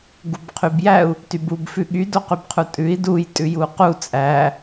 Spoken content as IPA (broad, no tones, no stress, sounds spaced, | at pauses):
ɡ u b qʰ y b j æ u̯ | t y b u b f ʉ ɠ y d o q y b qʰ u tʼ ʉ i̯ d u j tʼ ʉ j u q u t͡sʼ æ